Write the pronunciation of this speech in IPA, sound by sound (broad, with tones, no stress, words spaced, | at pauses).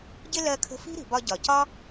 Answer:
ɟɪ˧ lɜ˧kʰə̤˧fi̤˥ɾi̤˩ bɒ˧ɟɒ˩ cɒ˥